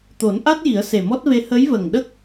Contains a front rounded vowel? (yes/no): no